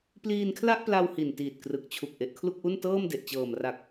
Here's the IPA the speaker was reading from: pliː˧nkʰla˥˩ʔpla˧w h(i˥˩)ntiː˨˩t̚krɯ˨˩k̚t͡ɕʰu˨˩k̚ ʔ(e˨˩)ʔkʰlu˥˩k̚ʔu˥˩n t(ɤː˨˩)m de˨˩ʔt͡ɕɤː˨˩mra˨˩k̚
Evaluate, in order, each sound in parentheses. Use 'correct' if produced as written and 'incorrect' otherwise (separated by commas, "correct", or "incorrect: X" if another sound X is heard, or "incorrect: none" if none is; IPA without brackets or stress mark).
incorrect: i˨˩, correct, incorrect: ɤː˥˩